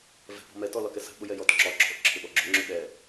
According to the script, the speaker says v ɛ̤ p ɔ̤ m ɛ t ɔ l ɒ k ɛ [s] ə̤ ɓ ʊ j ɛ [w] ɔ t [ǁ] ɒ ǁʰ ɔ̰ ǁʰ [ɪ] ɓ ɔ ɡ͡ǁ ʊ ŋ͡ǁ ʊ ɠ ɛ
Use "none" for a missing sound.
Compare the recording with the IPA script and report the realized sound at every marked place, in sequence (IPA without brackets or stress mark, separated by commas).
s, j, ǁ, ɪ